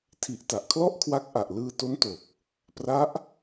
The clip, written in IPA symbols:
tʰi˨˩ʔta˨˩ʔkʰlɔ˥˩ʔkʰwa˦˥k̚ ʔa˨˩ʔlɯː˧to˦˥nto˨˩k̚ | pra˦˥ʔ

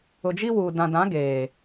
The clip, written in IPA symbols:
ʊ˨d͡ʒi˦wuː˨ dã˨dã˨˦ ɡeː˨

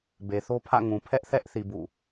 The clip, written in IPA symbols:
be˨θo˦pʰä̰˦˨ ŋũ˨pʰɛ˦ʔθɛ˦ʔθi˨ bṵ˦˨

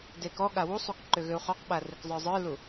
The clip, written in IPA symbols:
dekɔɠa wusˤuk ǃʏɣʏu̯χɔqɓa rʏkzˤə˞zˤə˞lu

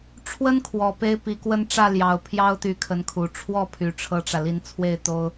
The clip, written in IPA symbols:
ʈ͡ʂʰwə˥nkʰwɔ˨˩ pe˥ɪ̯pi˧˥kwə˥˧n ʈ͡ʂä˥˩ljɑ˨˩ʊ̯pʰjɑ˥ʊ̯t̪y˧˥ kʰə˧˥nkʰu˨˩ ʈ͡ʂʰwɔ˥˩pʰy˨˩ ʈ͡ʂʰɤ˥ʈ͡ʂä˨li˥˧n t͡sʰwe˥˩ɪ̯t̪o˥ʊ̯

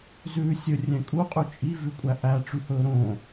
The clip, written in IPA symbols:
zʉːsʲɵrʲɛ̃ kʼuqʼʉ t͡ʃʼivʉkʷʼæ ʔæʈ͡ʂyhɵː ɾõ

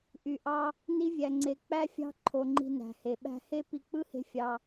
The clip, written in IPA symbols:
ʔy˧ʔɑ˦ | ni˦vʲæ˧ŋ͡ǀe˧ k͡pæ˦fʲɑ̤˦ ǃʰo˧ŋ͡ǃi̤˧næ̤˨he˨ ɓæ̤˧he˦ pi˧k͡pɯ˦he̤˧ fʲɑ˧

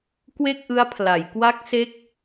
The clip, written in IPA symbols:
kwe˥˩k̚ʔɯ˦˥a̯pʰla˩˦j kwa˦˥k̚se˦˥k̚

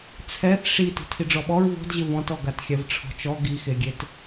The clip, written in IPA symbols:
t͡sʰɛθ ʂi ti̤tʰiɖ͡ʐɔɓɔɹ vɔ̤d ʑɪvɔ̃tɔ ɡatxʲɛvʈ͡ʂʰɔ̤t͡ʃɔ ɡixeɡʲet

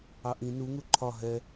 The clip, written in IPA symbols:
ɑʔĩ nuŋu ǃʰɒ ɦɛ

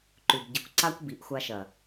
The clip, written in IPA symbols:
ǃʉ˨bɟi˨kʷ ǀa˦kʷbi˨˦ʔxʷa˧ʃɐ˨

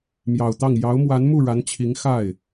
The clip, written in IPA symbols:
mjɑ˨˩ʊ̯t̪ɑ˥˩ŋ jɑ˧˥ʊ̯mwa˧˥nmu˥˩ ɻa˧˥nt͡ɕʰi˧˥ŋ xa˥˩ɪ̯

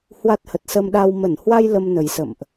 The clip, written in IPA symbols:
hwa˦˥t̚hə˨˩t̚sə˧mɗa˧w mə˧˩nhwa˧j lə˧mnə˨˩jsə̰˧˨mʔ

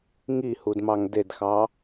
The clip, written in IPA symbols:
ŋihudmɑŋ dedxɑ

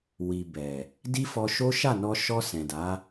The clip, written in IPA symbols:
wi˨ bɛ˨ | di˦fɔ˧ʃo˦ ʃa˦˨nɔ˧ʃɔ˧ sɛ̃˨da˨˦

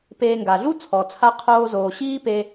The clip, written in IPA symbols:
peː˧ŋɡa˨ ɮu˦t͡sʰɔ˨t͡sʰa˧ qʰoː˧zoː˨ ɕiː˦pe˧

